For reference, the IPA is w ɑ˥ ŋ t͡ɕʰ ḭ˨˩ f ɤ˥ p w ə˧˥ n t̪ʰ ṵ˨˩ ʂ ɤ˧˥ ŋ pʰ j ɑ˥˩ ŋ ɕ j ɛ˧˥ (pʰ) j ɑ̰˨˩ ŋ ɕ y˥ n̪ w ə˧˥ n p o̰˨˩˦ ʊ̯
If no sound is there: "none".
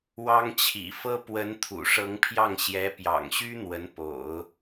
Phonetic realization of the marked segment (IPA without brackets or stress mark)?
p